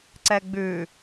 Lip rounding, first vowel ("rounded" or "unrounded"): unrounded